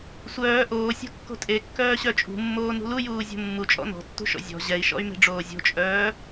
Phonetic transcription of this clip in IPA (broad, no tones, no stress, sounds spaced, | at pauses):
sʷ œː ʔ oː sʲ o̤ kː o̤ tʼ e kː œː ɕ œ t͡ʃʼ ṳ mː oː n ṳ l u j uː zʲ o̤ mː u t͡ʃʼ ɔ̰ n ɔ̤ tː ṳ ʃ ɔ̰ zʲ ɔ̤ ʑ ɛ i̯ ʃ ɔ̰ y̯ m e̤ ɖ͡ʐ oː zʲ o̤ t͡ʃʼ œː